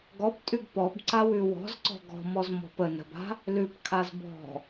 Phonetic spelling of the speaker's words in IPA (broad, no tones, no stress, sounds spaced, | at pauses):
ɡ ɔ p tʼ ʉ ɡ p ɔ b ǀ a w ʉ w ɔ̤ z ǀ ɔ̤ ɡ ɔ̤ m ɔ z m ɔ̤ p ə n ə̤ b a̤ | l ʉ p kʰ a z b ɔ̤